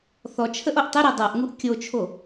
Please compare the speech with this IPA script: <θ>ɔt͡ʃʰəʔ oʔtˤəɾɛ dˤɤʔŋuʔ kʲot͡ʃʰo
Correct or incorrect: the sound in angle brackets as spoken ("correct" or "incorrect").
correct